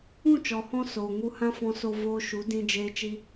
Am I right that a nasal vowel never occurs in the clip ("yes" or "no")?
no